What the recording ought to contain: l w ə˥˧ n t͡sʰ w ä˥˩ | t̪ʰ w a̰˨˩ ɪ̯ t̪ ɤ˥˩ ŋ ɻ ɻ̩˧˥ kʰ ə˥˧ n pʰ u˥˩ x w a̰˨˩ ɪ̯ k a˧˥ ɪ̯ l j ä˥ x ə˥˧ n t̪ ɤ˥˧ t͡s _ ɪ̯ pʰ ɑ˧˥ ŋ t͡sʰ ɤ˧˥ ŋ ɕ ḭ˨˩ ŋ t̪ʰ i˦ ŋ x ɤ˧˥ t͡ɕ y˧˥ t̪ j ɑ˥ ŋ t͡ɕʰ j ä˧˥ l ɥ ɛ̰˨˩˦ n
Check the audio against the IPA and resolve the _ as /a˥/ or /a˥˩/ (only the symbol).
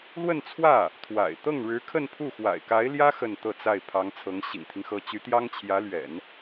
a˥˩